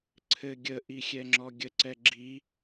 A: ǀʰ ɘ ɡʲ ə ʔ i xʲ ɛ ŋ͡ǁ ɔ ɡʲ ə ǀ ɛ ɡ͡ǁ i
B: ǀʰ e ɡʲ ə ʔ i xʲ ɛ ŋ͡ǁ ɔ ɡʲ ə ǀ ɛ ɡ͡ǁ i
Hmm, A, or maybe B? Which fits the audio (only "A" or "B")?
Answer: A